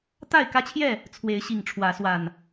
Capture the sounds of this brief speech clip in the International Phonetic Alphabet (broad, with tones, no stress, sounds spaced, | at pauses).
t̪ a˥˨ ɪ̯ k ä˦ t͡ɕʰ j ɛ˥˨ | t͡sʰ w e˨˦ ɪ̯ ɕ i˨˩ ŋ ʈ͡ʂʰ w ä˨˦ s w a˨˩ n